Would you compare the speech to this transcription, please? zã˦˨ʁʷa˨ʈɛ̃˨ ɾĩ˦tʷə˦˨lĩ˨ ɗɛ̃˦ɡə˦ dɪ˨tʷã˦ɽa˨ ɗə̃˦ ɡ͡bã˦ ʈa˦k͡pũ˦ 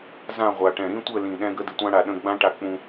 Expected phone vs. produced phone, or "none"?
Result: none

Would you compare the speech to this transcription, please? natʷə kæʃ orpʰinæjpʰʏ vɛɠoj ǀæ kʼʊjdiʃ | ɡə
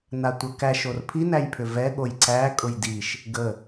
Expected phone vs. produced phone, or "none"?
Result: none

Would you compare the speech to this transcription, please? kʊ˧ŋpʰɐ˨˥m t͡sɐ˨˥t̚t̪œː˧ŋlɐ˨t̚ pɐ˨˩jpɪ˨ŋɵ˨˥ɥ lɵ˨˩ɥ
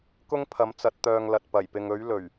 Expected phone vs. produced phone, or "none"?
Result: ʊ˧ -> ʊ˥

